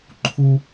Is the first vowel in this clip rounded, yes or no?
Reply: yes